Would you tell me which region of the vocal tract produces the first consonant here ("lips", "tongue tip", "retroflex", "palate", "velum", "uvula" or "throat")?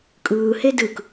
velum